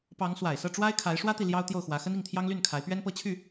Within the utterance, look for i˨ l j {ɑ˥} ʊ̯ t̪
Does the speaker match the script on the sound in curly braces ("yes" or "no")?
yes